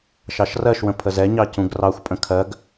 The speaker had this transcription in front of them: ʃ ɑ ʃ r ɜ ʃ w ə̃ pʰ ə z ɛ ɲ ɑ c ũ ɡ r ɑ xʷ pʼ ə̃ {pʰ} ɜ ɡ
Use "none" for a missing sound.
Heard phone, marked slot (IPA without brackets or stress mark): kʰ